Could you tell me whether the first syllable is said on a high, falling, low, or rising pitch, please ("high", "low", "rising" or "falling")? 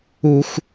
high